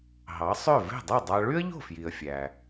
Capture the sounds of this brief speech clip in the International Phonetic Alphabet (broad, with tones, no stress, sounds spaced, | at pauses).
ɦ ɑ˩˥ sˤ ø˥˩ v e̤˥˩ dˤ ɯ˥˩ dˤ ɑ˧ ɭ y˥ ə̯ ʎ o̤˥˩ f j i˩ ə̯ fʲ æ˩